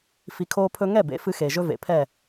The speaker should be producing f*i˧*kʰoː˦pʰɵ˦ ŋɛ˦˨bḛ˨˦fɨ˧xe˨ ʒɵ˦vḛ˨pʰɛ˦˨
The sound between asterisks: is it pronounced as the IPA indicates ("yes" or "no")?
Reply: yes